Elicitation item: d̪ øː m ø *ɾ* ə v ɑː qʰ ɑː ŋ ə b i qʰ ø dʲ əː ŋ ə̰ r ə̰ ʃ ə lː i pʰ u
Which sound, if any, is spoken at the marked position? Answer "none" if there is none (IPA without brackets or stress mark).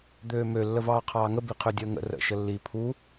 lː